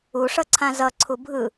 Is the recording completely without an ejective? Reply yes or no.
yes